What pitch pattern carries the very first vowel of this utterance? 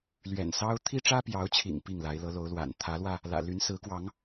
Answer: low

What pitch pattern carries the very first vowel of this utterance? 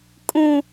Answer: high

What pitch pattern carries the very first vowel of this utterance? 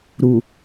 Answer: low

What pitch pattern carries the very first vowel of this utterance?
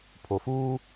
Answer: low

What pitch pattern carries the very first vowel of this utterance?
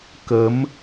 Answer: rising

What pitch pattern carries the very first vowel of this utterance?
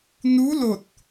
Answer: rising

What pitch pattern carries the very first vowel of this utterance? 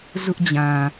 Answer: high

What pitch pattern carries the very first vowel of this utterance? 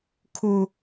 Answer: high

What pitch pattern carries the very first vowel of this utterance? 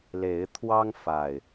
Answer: rising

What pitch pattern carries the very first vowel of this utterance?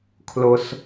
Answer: low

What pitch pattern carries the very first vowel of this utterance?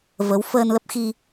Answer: rising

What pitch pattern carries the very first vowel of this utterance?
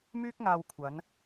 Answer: high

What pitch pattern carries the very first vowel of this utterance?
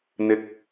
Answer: high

